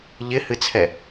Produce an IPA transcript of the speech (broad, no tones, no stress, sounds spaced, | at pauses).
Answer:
ʎ ɪ h ɨ t͡sʰ ɛ